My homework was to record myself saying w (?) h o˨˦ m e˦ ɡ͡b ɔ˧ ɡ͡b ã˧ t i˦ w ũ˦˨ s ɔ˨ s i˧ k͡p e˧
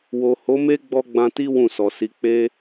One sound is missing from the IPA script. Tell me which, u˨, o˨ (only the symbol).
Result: o˨